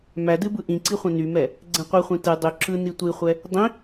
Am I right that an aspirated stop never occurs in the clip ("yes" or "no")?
yes